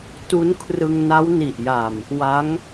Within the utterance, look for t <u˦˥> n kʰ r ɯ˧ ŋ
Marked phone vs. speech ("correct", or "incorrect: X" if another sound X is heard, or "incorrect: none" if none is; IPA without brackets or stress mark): correct